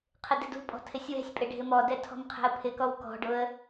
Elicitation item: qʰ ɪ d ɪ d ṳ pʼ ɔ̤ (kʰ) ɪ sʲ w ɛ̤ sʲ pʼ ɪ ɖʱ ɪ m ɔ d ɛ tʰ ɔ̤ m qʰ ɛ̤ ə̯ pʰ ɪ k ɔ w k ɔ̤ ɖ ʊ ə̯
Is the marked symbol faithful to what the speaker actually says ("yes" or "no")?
no